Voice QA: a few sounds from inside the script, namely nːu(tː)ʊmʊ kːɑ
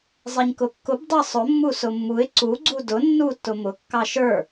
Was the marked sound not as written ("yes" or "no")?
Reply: no